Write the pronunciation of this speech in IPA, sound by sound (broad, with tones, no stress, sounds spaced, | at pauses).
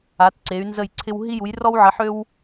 a˨˥ t ǀ e˨˥ y̯ n z ə˥˨ j ǀʰ ɪ˥ w ɦ i˥ j u˨˥ j r ɔ˥ w ʕ ə˨˥ ħ ø˥ w